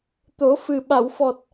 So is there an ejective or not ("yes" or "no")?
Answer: no